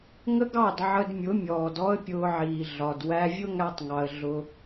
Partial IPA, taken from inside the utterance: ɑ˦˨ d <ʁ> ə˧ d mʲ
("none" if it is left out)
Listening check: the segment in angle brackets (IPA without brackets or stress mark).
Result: ʕ